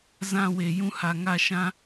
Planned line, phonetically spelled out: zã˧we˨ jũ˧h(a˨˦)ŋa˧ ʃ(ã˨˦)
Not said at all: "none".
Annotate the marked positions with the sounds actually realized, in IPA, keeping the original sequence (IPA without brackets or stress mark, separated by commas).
a˨, ã˧